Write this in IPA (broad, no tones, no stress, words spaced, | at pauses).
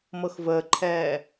mɤxvəːǃʰɛː